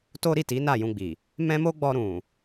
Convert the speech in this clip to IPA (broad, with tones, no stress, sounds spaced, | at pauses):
t o˦ ɾ i˦˨ t i˨˦ n a˦˨ j ũ˧ ɡ͡b i˨ | m ɛ̃˦ m o˦ ɡ͡b ɔ˧ ɾ ũ˨